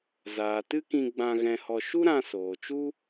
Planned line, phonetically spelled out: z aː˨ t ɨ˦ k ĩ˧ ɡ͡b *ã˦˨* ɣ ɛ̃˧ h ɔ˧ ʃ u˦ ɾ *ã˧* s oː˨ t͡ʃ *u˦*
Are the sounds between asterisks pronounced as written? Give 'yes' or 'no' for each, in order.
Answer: no, yes, yes

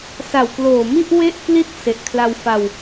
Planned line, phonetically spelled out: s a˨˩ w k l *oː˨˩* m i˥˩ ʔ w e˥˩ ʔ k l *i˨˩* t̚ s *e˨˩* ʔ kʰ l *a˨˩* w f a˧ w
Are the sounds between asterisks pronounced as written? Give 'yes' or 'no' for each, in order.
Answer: yes, no, yes, no

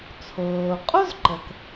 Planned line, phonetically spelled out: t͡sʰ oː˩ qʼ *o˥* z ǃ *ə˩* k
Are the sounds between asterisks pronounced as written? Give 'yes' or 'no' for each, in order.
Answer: yes, yes

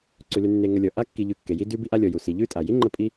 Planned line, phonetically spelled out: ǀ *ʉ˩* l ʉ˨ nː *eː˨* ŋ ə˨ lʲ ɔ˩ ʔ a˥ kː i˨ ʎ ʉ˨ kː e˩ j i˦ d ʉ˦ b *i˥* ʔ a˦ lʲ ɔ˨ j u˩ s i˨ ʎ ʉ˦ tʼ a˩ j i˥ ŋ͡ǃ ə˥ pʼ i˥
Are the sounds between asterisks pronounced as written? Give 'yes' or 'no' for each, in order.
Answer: yes, no, yes

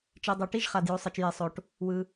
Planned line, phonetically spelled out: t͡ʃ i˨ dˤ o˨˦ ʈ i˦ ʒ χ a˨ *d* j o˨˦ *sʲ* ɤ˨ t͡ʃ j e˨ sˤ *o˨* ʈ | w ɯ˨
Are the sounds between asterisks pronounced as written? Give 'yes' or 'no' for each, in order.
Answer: yes, no, yes

